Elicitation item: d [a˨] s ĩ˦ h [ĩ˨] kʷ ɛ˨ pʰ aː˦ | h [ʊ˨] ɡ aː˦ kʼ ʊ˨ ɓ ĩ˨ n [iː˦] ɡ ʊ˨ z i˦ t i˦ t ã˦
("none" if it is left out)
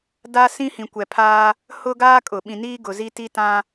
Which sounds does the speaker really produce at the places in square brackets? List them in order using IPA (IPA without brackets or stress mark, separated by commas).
a˦, ĩ˨, ʊ˦, iː˦